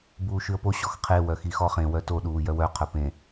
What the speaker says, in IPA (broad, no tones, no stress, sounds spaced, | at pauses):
b uː ʃ ʉ ə̯ p o ɕ ɔ x qʰ e w œ x i x ɔ χ ẽ w œ t o ɗ uː j œ w œ qʰ œ p ẽ